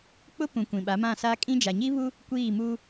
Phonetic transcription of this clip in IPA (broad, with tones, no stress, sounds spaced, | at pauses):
k͡p ʊ˦ p ũ˨ kʷ ĩ˨ ɓ a˨˦ m ã˦˨ s a˦ kʼ ĩ˦ d͡ʒ a˨ ɲ i˦ β u˦ | kʷ iː˦˨ m u˦